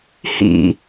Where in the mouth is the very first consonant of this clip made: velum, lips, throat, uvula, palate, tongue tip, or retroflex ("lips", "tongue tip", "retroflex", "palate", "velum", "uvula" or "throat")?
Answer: throat